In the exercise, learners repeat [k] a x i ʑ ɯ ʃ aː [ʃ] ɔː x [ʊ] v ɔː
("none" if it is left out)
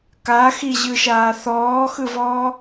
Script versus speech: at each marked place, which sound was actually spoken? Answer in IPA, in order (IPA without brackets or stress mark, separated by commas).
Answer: k, θ, ɯ